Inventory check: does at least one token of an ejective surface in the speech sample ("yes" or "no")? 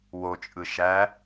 yes